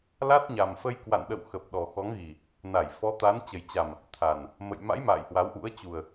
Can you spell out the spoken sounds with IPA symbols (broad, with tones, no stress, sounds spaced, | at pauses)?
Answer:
l a˦˥ t̚ ɲ a˨˩ m f ə˧ j k w a̰˧˨ n ɗ ə̰˧˨ w x ə˨˩ p̚ ɗ ɔ˨˩ x ɔ˨˦ ŋ ɣ i˨˩ | n a˧˩ j f ɔ˨˦ t̪ a˨˦ n t͡ɕ ə˨˩ j t͡ɕ a˨˩ m | t̪ʰ a˨˩ n | m ə̰˧˨ j m a̰˧˥ j m a̰ː˧˨ j h w a˨˦ w ʔ ṵ˧˥ ə̯ t͡ɕ u˨˩ ə̯